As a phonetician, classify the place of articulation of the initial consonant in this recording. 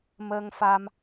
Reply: labial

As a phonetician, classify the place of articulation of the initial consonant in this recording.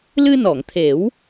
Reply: alveolar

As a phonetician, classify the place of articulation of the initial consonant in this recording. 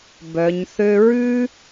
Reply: labial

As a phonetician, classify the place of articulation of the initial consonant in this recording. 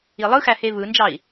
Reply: alveolar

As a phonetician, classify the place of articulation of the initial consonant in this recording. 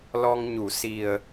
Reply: alveolar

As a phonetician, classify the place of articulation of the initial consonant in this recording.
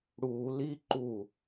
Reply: retroflex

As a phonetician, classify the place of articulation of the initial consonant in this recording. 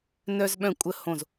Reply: alveolar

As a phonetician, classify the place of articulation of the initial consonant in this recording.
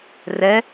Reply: alveolar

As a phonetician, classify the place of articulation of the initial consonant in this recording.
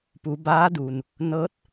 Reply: labial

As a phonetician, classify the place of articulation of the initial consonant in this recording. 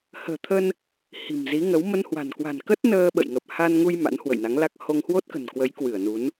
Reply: glottal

